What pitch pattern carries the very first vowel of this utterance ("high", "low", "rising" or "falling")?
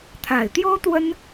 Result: low